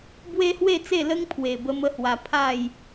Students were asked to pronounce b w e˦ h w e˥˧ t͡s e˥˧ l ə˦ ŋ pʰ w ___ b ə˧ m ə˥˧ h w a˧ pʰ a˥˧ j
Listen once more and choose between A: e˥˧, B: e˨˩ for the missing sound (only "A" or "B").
B